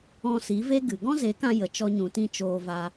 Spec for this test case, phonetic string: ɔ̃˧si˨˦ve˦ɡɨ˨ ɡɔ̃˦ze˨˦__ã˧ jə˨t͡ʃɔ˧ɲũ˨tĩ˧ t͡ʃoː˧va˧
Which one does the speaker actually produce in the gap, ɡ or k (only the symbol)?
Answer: k